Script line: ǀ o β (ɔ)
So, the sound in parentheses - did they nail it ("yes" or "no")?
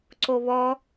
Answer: yes